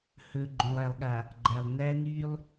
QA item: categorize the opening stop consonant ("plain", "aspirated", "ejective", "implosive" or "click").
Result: click